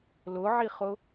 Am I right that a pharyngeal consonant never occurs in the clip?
no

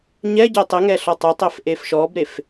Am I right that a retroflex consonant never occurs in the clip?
yes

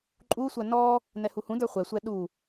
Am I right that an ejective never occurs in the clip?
no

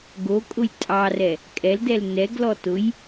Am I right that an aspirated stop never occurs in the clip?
yes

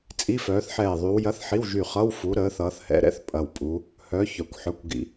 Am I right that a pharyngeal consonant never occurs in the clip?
no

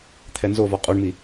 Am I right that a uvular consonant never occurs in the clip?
no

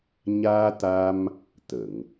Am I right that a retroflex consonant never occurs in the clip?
yes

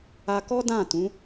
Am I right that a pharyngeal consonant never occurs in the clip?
yes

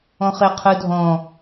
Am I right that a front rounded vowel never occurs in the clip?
yes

